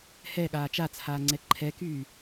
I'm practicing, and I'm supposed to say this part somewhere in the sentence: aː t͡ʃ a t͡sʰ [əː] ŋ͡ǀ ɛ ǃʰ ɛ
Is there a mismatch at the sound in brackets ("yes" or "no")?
yes